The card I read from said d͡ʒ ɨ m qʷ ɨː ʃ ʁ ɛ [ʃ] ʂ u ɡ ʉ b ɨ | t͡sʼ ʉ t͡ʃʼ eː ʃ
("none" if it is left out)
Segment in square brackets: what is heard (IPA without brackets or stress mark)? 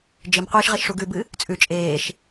ʃ